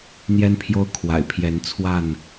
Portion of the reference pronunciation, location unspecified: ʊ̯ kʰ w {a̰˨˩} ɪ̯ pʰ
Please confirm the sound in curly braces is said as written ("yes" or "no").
yes